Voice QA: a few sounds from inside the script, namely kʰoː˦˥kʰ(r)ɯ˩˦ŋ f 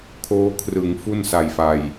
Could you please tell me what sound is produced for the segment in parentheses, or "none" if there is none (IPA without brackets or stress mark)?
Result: r